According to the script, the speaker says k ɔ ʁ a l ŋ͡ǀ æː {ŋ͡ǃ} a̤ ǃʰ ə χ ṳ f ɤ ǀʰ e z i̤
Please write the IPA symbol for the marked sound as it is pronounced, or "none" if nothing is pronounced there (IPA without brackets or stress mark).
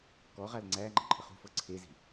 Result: ŋ͡ǃ